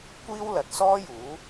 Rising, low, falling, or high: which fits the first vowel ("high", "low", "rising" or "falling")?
high